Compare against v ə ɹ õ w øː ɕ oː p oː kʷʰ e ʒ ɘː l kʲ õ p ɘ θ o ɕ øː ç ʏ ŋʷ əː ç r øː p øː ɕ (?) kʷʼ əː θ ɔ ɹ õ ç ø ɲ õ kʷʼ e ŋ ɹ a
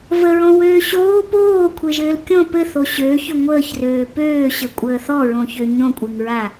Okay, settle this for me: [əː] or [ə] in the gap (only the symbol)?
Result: ə